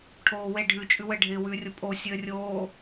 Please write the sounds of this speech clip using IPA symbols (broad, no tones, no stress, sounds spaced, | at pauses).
ʈʰ oː w e ɖʱ ʉ t͡ʃʼ ʉ w ɘ ɖʱ ɪː w ʉː rʲ o pʼ o sʲ ɘː rʲ oː